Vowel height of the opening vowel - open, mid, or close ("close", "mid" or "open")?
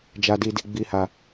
open